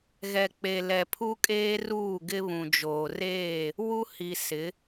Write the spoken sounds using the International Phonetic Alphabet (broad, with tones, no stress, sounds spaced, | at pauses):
ɣ ɛ˨ k͡p e˨ l ɛ˨ pʰ u˦ kʼ eː˦ r uː˦˨ ɡ ɪ˦ β ũ˨ d͡ʒ oː˨ r eː˦˨ | w u˦ h i˨ s ɪ˨˦